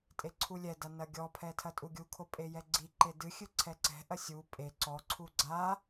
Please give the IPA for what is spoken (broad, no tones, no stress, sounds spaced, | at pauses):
tʼ e ǀʰ u lʲ ɛ d a n ɐ ɡʲ ɔ pʰ ɛ tʰ ɐ tʼ u ɡʲ u kʰ o pʼ e j ɛ ɡ͡ǀ i ǃ e d ɨ xʲ ɨ ǀʰ ɛ ǀ ɛ̤ ʔ ɐ sʲ u pʼ e ǀ ɔ ǀʰ u ɡ͡ǀ a